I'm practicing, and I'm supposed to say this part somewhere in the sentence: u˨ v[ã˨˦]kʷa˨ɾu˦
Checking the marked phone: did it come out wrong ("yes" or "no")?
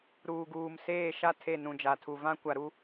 yes